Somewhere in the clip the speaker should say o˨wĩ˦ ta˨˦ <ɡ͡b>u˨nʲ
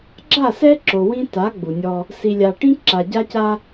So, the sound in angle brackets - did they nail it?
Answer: yes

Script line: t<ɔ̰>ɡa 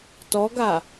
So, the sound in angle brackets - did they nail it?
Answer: no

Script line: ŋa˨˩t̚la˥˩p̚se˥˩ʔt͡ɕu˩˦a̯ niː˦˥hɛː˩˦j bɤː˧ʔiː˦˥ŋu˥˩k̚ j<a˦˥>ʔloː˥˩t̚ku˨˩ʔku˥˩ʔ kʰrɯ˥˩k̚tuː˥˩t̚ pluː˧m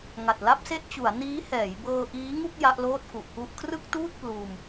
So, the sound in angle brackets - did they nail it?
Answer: yes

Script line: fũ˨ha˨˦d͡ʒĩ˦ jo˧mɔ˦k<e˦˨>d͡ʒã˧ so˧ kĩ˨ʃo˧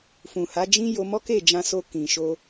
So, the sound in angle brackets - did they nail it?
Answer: yes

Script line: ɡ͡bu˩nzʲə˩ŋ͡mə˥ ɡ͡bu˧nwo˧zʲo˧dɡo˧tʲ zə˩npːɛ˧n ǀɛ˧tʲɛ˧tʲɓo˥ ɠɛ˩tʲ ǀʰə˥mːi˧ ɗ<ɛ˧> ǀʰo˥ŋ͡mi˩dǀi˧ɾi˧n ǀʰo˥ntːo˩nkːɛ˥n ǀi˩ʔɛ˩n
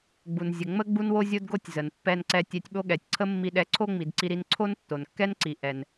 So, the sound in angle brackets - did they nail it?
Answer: yes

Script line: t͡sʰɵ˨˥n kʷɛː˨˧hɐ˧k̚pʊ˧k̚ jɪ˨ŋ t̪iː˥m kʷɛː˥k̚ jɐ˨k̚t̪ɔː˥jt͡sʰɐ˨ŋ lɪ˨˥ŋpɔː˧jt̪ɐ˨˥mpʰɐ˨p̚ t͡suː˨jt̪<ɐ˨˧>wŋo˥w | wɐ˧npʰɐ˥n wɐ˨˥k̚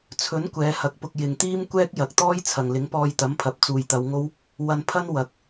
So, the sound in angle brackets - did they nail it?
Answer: yes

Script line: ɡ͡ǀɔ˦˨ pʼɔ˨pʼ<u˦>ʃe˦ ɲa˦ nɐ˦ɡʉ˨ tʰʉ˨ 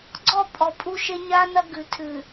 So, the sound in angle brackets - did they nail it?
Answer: yes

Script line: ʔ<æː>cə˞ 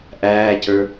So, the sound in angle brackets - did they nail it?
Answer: yes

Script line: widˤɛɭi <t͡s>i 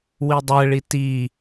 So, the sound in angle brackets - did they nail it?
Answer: no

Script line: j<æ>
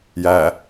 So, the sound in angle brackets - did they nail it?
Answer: yes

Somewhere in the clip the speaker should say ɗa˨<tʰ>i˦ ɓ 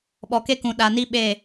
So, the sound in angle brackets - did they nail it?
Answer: no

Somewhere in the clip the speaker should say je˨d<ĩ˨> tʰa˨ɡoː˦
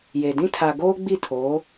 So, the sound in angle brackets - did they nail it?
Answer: no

